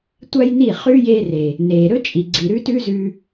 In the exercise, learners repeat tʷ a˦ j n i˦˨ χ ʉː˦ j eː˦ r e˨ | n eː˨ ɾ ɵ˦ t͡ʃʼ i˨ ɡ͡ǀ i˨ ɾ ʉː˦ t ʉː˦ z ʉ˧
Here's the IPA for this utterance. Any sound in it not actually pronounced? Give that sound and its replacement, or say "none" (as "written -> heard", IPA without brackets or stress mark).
none